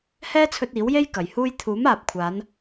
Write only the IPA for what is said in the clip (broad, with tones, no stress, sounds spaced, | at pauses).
h ɛː˥ t͡sʰ ɵ˧ t̚ iː˨˥ w j e˥ j k ɐ˨ j h uː˥ j t̪ʰ uː˨˥ m aː˨ p̚ kʷʰ aː˨˧ n